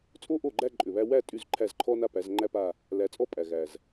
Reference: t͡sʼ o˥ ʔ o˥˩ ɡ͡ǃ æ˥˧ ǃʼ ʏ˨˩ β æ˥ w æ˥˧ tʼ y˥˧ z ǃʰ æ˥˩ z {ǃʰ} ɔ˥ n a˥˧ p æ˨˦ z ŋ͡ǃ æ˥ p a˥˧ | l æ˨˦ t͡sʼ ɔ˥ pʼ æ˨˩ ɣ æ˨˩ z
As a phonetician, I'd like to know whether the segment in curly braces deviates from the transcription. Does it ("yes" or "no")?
no